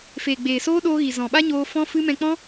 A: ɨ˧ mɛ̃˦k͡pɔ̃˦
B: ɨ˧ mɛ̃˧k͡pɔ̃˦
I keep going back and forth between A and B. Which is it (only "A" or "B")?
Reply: B